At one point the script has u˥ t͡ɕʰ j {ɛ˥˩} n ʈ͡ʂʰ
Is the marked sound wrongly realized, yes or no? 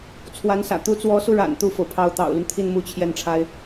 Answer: no